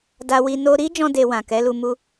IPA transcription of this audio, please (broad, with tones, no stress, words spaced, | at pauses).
da˧wi˧ no˧ ɾi˦d͡ʒɔ̃˧ de˧wã˨ kɛ˨˦lu˧mu˦